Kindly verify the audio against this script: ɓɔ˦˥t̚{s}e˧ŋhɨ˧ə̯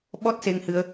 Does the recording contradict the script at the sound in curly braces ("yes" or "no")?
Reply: no